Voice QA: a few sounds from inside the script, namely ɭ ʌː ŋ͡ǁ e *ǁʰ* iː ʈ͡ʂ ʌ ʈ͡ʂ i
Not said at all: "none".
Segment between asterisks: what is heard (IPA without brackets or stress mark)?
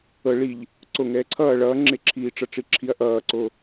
ǁʰ